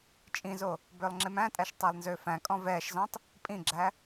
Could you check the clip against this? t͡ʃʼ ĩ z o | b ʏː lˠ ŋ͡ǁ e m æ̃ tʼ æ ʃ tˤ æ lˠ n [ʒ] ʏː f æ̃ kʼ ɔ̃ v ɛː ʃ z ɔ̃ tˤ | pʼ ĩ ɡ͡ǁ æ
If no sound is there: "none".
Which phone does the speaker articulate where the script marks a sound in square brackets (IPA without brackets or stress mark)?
z